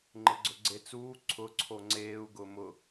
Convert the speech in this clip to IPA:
ŋ͡ǃɪɡ͡ǀʊɡ͡ǀet͡suː ǀʰʊ ǀʰoŋ͡ǀeːu̯ ɡʊːmʊ

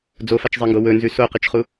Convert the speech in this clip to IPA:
d͡zofat͡ʃzˤeŋɡo wɵnzʉ soqɨt͡ʃχu

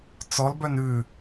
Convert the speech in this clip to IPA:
t͡sɔlbœn ʉ

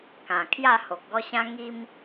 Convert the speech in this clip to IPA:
kã˨˩ kʰja˥˧ho˨k̚ɡɔ˦ɕã˦ ŋi˦m

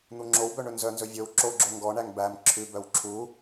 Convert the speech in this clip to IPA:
n̪uŋ͡ǁowbœ ɳɵnzœnzɵ vʲɵw ǁoɡ͡ǁo ŋɡɔɳæŋ bæm ǁʰʉbœw ǁʰu

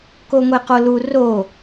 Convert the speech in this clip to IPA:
koŋʷeqolu ro

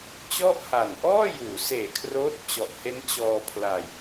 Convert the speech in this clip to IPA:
t͡ɕɔ˥˩ʔha˨˩n ʔɔː˥˩juː˩˦seː˨˩kʰroː˦˥t̚ t͡ɕɔ˨˩ʔhe˦˥n t͡ɕɔː˧pʰla˧j

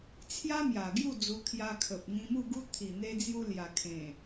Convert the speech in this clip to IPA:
t͡sʰja˦mja˨˩ɡju˥˧ d͡zu˧kʰja˧kʰə˨p̚ ŋĩ˧mu˥˧ɡu˦ t̪ʰi˨˩n̪e˧d͡zju˧ lja˨˩kʰẽ˨˩

